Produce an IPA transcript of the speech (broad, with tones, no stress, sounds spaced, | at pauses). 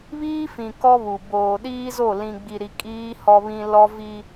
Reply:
β iː˦ f ĩ˨ k ɔ˦ β u˨ b oː˨ ɗ iː˦ z o˦˨ l ĩ˨ ɡ͡b i˨ ɾ i˨ kʼ iː˦ h ɔ˦ β ĩ˦ l ɔ˦ v i˦